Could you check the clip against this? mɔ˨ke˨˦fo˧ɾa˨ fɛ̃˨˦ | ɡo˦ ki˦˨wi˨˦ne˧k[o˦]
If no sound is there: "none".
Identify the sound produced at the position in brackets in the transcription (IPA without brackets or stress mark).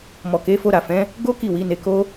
o˦